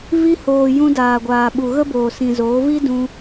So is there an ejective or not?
no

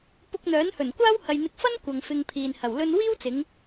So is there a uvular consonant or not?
no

